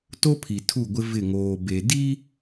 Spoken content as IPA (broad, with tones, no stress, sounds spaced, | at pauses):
t o˦ pʰ i˨ tʰ u˦˨ ɡʷ ɪ˦ v ɪ˦˨ ŋ oː˨ b e˨ d i˦